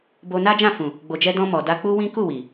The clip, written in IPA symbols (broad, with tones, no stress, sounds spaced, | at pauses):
b o˧ n a˦ d͡ʒ ã˦˨ f ũ˨ | ɡ͡b o˨ d͡ʒ ɛ˧ d ɔ̃˧ m ɔ˨ d a˧ k͡p u˦ w ĩ˦ k u˦˨ w i˨